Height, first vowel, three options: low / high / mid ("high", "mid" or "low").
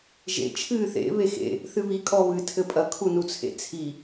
mid